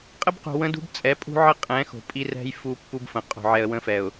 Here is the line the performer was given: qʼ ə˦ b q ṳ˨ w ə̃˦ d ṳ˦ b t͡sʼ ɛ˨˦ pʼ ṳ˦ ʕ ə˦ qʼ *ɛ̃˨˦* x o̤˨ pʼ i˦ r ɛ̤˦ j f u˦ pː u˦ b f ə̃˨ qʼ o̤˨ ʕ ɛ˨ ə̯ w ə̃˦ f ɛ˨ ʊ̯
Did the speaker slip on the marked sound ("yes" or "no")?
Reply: no